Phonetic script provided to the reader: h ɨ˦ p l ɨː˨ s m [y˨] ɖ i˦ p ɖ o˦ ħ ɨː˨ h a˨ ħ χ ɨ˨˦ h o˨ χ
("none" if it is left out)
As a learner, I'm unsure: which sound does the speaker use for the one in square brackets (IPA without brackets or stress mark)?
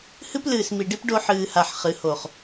i˨